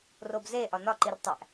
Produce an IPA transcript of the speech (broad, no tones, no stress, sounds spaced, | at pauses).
r o b z e ʔ ɒ n ɒ ǃ i r tˤ æ ʔ